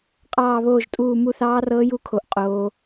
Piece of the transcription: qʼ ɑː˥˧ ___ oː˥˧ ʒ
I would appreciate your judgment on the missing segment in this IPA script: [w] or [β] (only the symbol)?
β